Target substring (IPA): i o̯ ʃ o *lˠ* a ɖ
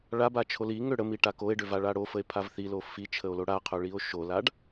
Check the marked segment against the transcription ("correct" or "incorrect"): incorrect